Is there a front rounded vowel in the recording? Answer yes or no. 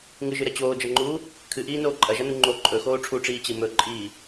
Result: no